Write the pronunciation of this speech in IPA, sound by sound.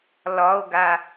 lɒo̯ɡa

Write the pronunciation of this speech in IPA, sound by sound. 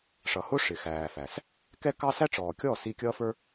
ʂʌ˨hʊ˦ ʂɪ˨xæː˨fæ˨s | kɛ˦kɑ˦ sæ˦ʈ͡ʂɔː˨kʲɔː˦˨s i˧kʲʌː˦fə˞˦

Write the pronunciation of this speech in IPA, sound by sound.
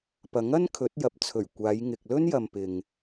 pɐ˨˥ŋɐ˥n kʰɵ˨˥t̚jɐ˨p̚t͡sʰɵ˨˩ɥ kʷaː˨˧jŋɪ˨k̚ lɵ˥njɐ˨mpɪ˨ŋ

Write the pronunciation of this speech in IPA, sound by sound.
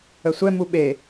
əsʷɛ muɓe

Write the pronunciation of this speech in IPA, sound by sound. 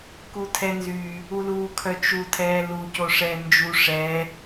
kutʰɛnzy | uluːkʰœt͡ʃu tʰɛːlu coʂɛːnd͡ʒu ʂɛ

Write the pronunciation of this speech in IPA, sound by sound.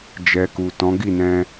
d͡ʒɛ˨ku˨ tɔ̃˨˦ ɡi˦˨nɛ̃˧

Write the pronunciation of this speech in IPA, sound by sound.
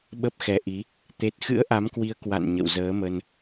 ɓə˦˥p̚xɛ˨˦ʔi˨˦ | t̪e˦˥t̚ xɨ̰˧˥ə̯ʔa˨˦mkwi˨˦ə̯ kwa̰˧˨n ɲə̰˧˨wzəː˨˦mə˧n

